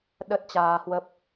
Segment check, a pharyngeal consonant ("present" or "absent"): absent